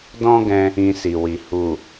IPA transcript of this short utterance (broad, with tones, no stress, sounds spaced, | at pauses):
d ɔ̃˦ ɡ ɛ̃˧ | ĩ˧ s i˨ w i˨ h u˨